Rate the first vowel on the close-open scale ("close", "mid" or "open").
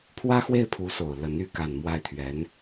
open